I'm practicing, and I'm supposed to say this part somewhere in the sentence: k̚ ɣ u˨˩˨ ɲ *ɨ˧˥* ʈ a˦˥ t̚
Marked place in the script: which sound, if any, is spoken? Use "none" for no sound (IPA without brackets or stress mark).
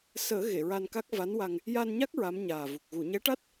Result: ɛ˧˥